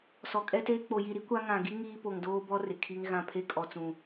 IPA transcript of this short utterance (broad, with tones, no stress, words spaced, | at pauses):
sɔ˨kʼɛ˦teː˦ k͡po˨ji˨ɾi˦ kʷa˦ ŋã˨ɡi˦ ŋiː˦po˨ŋdoː˦bɔ˦ rɪ˨kʰi˦ŋɣã˦˨ pʰe˦kʼɔ˨t͡sũ˨